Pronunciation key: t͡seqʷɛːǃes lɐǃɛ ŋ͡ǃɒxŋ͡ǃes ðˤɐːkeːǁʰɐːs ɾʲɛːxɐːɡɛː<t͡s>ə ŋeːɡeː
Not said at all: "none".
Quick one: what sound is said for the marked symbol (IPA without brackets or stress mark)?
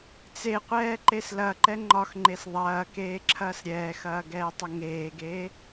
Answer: tˤ